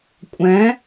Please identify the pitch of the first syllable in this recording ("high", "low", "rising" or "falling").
rising